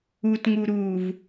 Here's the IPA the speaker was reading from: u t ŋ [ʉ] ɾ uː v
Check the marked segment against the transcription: incorrect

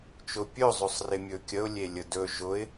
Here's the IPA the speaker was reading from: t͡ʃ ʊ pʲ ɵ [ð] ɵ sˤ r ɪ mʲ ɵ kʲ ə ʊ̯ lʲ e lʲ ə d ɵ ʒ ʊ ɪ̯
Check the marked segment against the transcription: incorrect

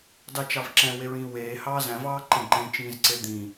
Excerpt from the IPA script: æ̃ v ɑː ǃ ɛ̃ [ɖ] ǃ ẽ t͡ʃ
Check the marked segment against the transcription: correct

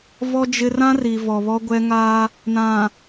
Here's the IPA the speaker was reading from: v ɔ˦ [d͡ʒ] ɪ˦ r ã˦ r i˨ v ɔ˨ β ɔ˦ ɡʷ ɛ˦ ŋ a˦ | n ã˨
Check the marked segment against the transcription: correct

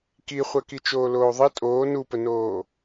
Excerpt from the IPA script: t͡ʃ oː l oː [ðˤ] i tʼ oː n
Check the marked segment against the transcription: correct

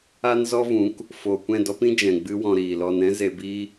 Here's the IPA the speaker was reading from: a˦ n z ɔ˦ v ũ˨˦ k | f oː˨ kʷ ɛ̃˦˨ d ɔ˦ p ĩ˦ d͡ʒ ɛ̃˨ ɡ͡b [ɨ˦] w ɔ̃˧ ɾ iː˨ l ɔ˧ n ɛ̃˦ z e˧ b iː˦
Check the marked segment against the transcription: correct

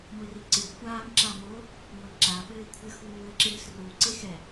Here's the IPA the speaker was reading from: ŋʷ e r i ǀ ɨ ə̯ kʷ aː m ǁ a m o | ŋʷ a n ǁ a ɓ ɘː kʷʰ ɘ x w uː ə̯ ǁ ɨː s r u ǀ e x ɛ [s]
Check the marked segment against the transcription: incorrect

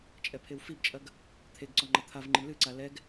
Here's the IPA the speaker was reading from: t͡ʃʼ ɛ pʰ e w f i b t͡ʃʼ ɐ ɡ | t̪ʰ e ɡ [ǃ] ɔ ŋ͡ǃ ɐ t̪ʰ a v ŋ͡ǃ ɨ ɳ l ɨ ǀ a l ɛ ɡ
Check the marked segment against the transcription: incorrect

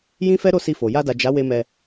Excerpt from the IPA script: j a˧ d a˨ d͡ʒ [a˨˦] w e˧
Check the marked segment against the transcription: correct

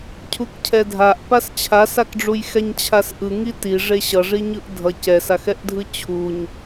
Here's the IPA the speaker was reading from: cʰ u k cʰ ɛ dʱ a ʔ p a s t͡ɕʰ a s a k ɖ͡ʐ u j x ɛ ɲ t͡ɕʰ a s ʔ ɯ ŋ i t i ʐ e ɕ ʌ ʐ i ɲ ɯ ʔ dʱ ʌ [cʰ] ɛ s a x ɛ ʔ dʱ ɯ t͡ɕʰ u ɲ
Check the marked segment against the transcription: incorrect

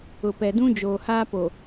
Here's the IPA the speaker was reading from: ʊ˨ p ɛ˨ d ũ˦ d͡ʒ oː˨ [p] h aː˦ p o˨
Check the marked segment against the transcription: incorrect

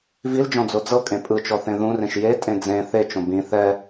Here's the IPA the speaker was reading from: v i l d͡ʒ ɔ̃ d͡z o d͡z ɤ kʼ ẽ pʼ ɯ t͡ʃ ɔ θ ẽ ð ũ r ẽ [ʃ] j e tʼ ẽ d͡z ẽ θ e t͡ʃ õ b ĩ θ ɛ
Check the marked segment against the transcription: correct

